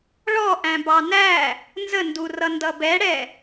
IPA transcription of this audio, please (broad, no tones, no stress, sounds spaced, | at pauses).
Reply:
ɭ ɔ ʔ æ̃ b ɑ n æ | n z ə n d u r ʌ n d ʌ b ɛ ɽ ɛ